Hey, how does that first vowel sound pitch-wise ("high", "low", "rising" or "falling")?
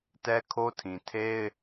high